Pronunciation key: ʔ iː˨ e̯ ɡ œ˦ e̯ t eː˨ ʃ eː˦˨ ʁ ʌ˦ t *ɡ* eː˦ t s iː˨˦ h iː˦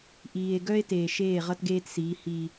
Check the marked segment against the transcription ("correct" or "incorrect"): correct